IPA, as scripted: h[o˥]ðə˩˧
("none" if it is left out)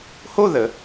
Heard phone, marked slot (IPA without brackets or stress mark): o˥˧